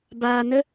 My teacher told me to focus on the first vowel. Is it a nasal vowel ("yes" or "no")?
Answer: no